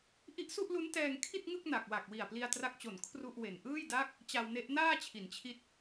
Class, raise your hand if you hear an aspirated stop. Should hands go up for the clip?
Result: yes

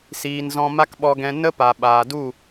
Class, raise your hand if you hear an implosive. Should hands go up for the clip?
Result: yes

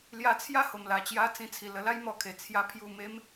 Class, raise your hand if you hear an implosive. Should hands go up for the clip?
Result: no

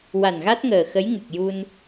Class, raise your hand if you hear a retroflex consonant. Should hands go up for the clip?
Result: no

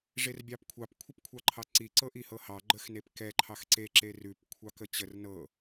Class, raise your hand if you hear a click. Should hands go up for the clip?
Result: yes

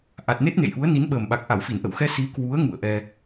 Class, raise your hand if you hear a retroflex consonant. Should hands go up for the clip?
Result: no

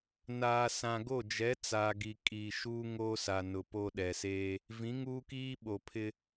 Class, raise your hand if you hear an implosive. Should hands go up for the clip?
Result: yes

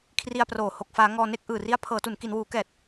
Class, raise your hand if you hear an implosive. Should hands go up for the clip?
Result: no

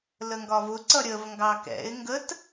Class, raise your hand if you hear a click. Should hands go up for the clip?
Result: yes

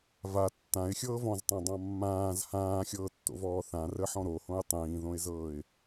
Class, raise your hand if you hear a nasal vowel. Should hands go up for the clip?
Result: yes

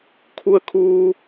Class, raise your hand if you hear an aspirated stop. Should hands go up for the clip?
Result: yes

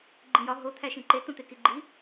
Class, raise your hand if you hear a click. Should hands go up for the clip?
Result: yes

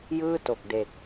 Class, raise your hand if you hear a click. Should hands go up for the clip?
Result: no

